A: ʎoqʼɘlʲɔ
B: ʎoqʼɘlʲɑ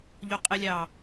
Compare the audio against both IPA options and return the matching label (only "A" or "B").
B